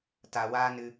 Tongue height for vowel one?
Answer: low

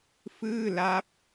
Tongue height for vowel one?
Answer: high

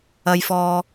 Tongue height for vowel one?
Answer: low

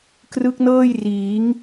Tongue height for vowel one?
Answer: high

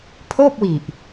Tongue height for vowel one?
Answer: mid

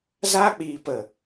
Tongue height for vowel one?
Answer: low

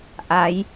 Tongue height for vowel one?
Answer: low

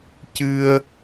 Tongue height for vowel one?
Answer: high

